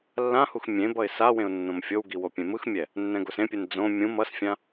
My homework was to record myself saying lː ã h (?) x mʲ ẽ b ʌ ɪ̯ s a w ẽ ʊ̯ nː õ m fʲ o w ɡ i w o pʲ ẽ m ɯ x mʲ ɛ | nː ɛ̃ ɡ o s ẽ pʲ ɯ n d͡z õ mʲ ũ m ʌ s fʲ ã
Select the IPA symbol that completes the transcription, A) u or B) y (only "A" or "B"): A